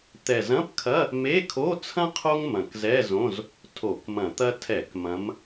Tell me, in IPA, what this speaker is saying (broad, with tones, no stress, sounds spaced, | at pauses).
t̪ ɛ˨˩ z ɐ̃˧˥˧ p kʰ ɐ˧˥˧ | m e˧˥˧ kʰ o˧˥˧ t͡sʰ ɐ̃˥ qʰ o˥ ŋ m ɐ̃˨˩ k z ɛ˧˥˧ z õ˧˥˧ z | tʰ o˧˩˧ k m ɐ̃˧˩˧ t̪ ɐ˥ tʰ ɛ˧˩˧ k m ɐ̃˨˦ m